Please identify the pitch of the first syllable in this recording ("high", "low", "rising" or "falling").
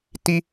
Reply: high